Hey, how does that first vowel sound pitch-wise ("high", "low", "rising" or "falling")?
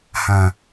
low